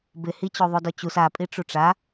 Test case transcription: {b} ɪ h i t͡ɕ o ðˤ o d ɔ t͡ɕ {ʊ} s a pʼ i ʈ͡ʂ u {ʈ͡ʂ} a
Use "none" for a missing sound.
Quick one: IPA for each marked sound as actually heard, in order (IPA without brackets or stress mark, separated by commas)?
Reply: b, u, ʈ͡ʂ